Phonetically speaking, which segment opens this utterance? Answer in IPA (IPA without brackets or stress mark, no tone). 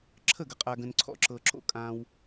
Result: ǁʰ